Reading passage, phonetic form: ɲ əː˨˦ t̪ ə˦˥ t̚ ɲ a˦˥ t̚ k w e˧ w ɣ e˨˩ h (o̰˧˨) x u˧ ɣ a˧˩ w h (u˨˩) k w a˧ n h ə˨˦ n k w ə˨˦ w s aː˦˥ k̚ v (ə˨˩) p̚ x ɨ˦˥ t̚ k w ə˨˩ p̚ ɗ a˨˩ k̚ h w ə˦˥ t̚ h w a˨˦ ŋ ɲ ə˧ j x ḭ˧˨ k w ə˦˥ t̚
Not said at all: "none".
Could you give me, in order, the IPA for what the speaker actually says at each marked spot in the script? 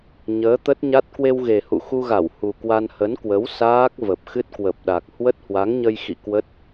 ṵ˧˨, u˨˩, ə˨˩

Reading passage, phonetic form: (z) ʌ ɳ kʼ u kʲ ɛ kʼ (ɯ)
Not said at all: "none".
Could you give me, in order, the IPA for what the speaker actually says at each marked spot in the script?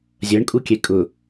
zʲ, ʊ

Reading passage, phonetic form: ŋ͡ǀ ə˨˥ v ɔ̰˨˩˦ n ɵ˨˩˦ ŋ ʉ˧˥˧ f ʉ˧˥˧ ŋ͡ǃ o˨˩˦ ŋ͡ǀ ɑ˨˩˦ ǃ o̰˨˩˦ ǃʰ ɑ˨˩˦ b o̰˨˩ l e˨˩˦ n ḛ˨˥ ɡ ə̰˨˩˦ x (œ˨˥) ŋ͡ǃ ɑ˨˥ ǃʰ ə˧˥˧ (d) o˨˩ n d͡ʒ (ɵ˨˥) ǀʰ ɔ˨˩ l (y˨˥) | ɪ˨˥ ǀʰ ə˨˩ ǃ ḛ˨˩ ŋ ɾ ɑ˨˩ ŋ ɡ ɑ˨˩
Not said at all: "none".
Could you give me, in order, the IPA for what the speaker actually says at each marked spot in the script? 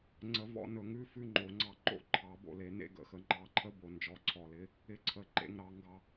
ə˨˥, b, ɔ˨˥, ɪ˨˥

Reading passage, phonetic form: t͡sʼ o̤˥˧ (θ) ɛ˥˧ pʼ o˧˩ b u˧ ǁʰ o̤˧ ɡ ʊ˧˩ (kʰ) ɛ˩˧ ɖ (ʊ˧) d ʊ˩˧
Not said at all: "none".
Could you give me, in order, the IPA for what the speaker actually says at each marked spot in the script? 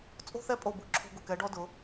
θ, k, ɔ˧

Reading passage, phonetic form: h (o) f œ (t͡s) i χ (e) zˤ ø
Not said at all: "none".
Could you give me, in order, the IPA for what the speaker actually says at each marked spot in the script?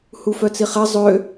u, t͡s, ɛ

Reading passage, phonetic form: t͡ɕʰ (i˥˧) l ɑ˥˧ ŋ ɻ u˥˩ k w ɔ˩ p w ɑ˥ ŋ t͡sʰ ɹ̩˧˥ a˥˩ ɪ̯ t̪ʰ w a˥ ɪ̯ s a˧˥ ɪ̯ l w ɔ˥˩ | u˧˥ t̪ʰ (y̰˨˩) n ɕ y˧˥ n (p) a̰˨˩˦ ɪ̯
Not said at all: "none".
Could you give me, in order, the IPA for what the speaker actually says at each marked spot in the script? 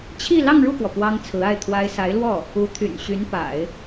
i˥˧, y̰˨˩, p

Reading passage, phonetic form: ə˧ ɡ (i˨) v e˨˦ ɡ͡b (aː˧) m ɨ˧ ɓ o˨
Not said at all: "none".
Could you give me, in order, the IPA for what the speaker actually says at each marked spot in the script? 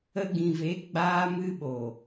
ĩ˨, aː˧

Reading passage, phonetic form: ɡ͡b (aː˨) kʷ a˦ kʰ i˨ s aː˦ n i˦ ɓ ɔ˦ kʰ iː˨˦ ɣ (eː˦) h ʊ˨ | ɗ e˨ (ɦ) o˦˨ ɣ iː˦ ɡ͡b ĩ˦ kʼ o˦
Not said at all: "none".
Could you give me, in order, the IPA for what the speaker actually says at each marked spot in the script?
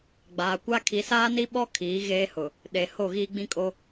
aː˨, eː˦, h

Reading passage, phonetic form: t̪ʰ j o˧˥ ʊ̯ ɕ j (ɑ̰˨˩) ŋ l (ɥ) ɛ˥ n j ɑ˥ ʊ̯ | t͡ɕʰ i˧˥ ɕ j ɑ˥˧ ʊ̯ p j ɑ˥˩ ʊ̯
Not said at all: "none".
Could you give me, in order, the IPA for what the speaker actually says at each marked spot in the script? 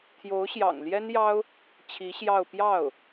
ɑ̰˨˩, j

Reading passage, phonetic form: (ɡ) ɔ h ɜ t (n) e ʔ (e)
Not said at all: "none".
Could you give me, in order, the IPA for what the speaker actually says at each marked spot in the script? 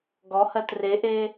ɡ, r, e

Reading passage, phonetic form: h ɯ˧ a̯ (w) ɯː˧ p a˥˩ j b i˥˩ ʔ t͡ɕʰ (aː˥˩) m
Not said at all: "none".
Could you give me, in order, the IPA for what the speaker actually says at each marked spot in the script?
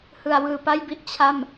w, a˥˩

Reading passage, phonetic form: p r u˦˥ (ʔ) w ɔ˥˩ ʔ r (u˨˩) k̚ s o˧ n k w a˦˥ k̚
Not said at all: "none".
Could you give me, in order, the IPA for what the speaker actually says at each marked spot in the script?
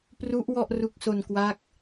ʔ, u˦˥

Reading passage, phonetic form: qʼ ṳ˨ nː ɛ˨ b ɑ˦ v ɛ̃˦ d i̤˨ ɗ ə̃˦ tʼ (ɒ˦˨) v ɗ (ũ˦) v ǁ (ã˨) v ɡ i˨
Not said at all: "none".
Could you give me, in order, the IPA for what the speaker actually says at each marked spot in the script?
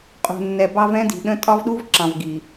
ɒ˦, u˦, ɑ̃˨

